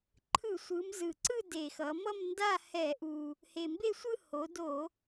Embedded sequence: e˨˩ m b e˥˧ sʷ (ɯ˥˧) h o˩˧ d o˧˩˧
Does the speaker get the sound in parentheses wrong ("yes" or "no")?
no